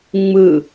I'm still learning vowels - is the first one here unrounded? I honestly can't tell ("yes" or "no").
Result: yes